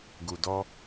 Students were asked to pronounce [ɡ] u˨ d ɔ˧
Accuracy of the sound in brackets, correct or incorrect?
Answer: correct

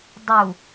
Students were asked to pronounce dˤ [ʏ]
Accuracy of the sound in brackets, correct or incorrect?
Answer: incorrect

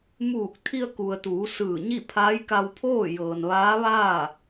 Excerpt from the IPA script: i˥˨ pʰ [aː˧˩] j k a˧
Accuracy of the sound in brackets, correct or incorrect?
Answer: incorrect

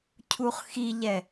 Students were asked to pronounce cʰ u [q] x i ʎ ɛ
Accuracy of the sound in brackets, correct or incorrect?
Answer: incorrect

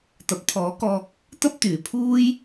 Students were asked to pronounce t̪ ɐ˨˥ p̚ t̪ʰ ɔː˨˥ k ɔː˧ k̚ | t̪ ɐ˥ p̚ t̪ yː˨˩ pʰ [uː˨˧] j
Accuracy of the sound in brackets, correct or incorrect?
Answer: incorrect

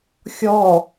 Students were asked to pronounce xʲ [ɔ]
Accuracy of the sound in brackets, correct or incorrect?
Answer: correct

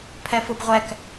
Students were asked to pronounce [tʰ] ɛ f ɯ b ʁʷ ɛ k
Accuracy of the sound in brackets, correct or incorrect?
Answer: incorrect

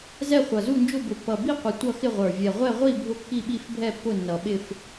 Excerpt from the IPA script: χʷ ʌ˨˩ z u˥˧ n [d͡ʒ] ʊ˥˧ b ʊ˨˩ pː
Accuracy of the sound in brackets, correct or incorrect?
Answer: correct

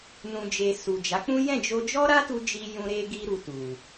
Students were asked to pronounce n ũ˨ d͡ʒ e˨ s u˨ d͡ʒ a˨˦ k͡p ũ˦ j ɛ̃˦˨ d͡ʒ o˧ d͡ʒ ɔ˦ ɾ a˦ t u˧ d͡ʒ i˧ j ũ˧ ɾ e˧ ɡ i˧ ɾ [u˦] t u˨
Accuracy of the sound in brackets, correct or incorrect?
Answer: incorrect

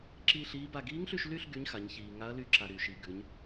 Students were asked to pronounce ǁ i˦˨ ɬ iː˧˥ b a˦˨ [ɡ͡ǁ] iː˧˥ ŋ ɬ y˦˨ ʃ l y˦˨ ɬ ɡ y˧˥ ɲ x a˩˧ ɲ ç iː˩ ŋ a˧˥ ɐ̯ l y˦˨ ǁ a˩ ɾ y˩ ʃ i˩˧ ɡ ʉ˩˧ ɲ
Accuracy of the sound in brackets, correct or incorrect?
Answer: incorrect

